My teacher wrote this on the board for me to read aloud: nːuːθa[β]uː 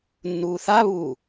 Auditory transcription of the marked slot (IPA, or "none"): β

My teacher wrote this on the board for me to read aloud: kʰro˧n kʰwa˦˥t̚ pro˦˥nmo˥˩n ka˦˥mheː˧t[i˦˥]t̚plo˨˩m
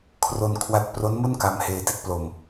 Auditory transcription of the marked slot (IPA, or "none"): i˦˥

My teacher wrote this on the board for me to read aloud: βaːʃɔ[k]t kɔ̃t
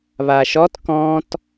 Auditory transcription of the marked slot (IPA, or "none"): none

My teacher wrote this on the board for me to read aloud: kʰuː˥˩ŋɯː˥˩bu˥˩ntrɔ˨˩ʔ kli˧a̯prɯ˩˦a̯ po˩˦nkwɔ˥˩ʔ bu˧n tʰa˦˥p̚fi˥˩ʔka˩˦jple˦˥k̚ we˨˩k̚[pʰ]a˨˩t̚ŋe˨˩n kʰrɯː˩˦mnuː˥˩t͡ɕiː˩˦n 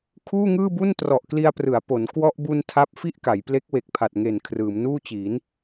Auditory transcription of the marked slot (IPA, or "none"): pʰ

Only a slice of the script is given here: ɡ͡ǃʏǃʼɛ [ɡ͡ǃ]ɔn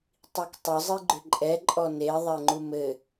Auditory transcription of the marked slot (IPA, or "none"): ǃʼ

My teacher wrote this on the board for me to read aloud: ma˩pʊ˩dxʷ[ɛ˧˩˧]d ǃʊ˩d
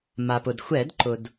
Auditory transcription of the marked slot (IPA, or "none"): ɛ˧˩˧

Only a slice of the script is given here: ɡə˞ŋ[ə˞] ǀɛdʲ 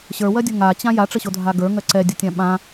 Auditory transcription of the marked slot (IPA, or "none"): ɜ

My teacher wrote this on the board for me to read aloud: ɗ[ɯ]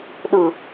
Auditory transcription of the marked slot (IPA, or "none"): ɯ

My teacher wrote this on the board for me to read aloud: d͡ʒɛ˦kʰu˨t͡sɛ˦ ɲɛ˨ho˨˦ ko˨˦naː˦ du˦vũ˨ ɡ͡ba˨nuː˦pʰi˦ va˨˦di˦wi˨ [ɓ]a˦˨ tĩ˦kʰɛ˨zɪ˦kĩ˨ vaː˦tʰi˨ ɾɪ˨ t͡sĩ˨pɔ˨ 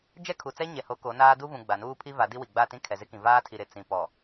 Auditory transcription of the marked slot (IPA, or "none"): ɡ͡b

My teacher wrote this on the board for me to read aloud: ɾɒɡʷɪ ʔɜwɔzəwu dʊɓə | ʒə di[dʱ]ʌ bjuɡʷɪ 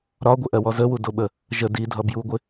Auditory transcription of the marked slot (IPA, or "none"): dʱ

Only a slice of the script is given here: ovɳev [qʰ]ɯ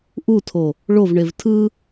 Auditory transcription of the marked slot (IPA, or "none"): tʰ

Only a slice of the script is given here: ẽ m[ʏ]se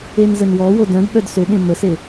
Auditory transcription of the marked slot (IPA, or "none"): ə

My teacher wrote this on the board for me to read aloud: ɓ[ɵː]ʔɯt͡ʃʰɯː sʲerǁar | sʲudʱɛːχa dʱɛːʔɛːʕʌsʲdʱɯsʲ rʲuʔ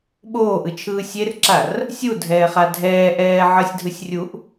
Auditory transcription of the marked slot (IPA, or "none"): oː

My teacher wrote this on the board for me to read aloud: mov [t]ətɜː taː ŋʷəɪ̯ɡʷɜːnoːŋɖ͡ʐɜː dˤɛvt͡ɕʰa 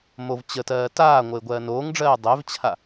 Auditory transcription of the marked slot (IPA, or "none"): t͡ɕ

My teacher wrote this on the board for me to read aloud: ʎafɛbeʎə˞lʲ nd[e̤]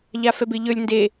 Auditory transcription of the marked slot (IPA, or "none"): e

